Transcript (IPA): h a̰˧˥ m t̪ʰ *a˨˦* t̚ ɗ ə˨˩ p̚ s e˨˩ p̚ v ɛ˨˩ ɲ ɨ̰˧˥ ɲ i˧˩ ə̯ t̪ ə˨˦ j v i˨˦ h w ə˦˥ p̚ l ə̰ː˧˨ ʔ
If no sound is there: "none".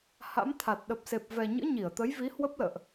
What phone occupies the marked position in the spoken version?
a˨˩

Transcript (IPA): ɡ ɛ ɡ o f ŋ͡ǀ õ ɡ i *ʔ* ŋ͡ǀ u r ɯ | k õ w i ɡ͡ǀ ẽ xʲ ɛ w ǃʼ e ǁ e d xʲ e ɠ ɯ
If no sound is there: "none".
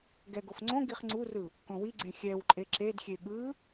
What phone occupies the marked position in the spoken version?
χ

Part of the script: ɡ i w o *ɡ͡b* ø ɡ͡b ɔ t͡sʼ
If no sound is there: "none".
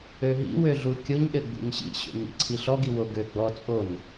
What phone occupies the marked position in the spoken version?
ɡ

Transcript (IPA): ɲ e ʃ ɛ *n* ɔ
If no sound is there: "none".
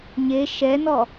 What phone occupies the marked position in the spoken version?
n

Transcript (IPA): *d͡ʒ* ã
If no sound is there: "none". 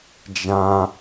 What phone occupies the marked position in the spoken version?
d͡ʒ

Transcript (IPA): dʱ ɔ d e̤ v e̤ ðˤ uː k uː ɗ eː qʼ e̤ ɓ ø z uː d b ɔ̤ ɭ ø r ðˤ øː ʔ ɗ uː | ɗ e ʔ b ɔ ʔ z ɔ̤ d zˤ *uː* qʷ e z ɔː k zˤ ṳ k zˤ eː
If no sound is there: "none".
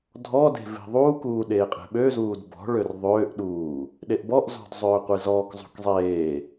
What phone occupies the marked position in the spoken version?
øː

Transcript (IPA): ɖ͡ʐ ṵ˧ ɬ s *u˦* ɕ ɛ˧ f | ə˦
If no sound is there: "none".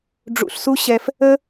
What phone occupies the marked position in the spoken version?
u˦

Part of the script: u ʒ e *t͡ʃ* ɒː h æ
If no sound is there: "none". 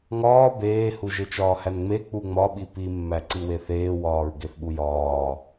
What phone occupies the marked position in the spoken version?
t͡ʃ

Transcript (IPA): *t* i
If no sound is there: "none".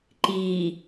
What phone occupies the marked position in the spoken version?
ǃ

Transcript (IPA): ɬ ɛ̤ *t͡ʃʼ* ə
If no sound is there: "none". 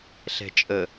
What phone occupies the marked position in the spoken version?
t͡ʃʼ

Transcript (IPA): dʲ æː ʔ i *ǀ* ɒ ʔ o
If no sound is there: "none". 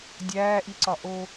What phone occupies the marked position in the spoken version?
ǀ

